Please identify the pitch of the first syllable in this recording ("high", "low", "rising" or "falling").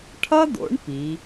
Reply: high